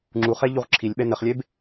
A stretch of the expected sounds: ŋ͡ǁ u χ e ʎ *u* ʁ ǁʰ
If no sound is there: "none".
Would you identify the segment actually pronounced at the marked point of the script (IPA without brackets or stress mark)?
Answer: u